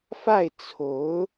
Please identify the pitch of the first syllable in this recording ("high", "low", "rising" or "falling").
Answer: falling